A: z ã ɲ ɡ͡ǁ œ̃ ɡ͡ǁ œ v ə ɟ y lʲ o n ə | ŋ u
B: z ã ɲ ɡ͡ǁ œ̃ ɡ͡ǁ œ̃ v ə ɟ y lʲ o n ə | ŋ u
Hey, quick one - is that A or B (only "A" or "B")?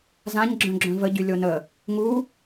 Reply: B